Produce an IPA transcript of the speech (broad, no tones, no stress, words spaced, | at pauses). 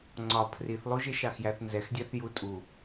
ŋ͡ǀɒ pʰriθlˠuʒɪ ʃɑxjæθnzɛxdʲæθ jutʼu